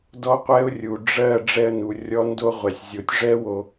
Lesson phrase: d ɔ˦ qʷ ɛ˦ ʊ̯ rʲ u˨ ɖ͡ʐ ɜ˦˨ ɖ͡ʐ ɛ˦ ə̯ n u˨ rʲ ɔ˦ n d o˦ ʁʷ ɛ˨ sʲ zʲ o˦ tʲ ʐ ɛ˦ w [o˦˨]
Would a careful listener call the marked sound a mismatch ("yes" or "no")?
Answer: yes